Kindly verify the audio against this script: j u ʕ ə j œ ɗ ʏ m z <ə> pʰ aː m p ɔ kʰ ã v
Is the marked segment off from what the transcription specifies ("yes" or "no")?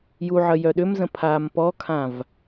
yes